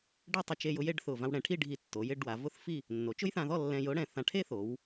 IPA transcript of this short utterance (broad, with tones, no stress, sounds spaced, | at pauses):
ɖ ɛ˥˧ tˤ ʊ˧ t͡ʃ e˧ j ʊ˧ j e˥˧ ɖ θ ʊ˧˩ v ã˧ w ɽ ɛ̃˩˧ ʈʰ i˥˧ ɖʱ i˧˩ tː o˩˧ j ɪ˥˧ ɖ w a˩˧ v ʊ˥˧ θ f i˥˧ | nː o˩˧ t͡ʃ ʊ˥ j θ ã˧ ð ɔ˥˧ lː ɛ̃˧ j ʊ˥ ɽ ɛ̃˧˩ θ ã˧ ʈʰ e˥ θ o˩˧ w